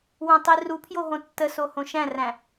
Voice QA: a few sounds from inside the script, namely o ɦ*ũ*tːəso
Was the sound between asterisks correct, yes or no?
no